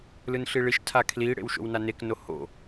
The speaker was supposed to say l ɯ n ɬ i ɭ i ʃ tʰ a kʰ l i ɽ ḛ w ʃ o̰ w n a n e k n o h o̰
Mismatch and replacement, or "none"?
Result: none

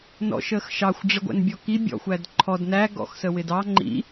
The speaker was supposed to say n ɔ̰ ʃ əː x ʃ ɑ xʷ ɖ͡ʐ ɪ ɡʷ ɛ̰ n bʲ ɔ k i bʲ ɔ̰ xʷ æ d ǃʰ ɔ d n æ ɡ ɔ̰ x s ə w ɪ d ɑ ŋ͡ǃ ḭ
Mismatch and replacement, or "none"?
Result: none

